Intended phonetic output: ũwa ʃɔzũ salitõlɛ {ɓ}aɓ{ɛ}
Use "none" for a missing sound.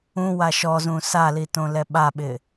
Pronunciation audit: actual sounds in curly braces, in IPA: ɓ, ɪ

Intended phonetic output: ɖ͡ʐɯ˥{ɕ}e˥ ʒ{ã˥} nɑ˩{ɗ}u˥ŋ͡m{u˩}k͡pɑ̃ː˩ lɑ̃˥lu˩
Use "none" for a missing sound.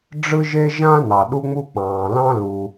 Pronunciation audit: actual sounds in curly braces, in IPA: ʒ, ã˥, ɗ, u˥

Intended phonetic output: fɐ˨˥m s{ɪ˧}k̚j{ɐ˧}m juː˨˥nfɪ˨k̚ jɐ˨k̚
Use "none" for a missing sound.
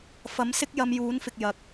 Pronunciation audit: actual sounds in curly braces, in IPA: ɪ˥, ɐ˧

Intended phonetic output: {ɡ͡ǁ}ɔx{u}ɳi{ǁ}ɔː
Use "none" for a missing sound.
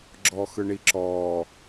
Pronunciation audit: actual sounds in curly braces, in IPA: ɡ͡ǁ, ɯ, ǁ

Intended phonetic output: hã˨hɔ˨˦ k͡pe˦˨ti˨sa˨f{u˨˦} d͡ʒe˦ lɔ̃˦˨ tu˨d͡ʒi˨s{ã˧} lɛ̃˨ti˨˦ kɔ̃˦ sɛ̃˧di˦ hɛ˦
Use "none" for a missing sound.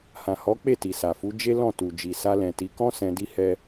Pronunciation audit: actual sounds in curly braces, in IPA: u˨˦, a˧

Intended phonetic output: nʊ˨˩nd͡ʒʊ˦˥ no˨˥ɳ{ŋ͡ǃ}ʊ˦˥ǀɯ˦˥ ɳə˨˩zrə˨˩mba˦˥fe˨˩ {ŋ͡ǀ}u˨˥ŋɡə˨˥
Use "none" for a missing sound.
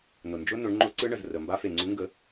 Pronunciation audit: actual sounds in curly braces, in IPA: ŋ͡ǃ, ŋ͡ǀ

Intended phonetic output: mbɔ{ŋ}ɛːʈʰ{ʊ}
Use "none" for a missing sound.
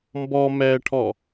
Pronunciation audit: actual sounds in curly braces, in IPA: m, ɔ

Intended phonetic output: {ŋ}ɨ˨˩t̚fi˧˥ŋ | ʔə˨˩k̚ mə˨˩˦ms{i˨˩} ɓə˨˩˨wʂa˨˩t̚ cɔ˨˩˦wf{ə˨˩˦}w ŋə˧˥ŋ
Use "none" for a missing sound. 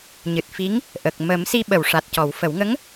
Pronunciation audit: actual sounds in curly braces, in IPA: ɲ, i˧, ə˨˩˦

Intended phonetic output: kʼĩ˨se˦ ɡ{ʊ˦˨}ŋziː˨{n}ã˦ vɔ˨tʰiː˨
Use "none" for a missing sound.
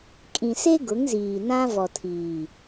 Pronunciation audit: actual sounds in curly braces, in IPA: ʊ˨˦, n

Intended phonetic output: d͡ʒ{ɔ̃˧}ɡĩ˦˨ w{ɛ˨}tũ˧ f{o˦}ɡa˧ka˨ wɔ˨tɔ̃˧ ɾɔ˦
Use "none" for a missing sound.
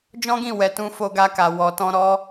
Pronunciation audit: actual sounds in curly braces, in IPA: ɔ̃˦, ɛ˨, o˧

